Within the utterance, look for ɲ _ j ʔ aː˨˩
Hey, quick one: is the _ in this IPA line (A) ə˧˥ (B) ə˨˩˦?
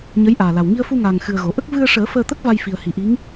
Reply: A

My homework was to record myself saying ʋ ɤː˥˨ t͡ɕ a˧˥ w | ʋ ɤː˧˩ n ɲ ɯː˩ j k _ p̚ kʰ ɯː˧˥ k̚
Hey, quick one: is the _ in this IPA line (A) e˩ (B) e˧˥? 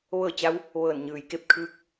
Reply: B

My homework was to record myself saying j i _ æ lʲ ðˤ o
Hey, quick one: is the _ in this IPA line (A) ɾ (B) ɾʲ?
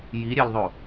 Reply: B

